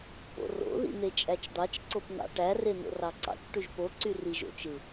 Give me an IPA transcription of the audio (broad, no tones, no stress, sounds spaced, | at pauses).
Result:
p o̰ r o̰ ð ḭ n̪ e t͡ʃʼ æ t͡ʃ d̪ ɑ t͡ʃ ǀ o p n̪ ɑ̰ ʈ æ r e n̪ o̰ r ɑ ǀ ɑ̰ t͡ʃ ʈ y ʒ p o ǀ y r i ʒ o̰ t͡ʃ ɯ